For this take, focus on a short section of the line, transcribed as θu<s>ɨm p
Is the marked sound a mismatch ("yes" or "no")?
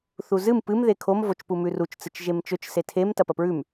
yes